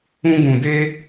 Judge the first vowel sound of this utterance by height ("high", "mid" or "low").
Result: high